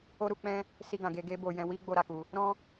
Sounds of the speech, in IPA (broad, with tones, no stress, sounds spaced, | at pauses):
o˦ ɾ u˧ k͡p ɛ̃˦ | s i˧ ɡ ã˨ ɡ e˧ ɡ e˦ b o˧ j ɛ̃˧ w i˦ ɡ͡b o˦˨ ɾ a˨˦ k u˧ | ɾ ɔ̃˦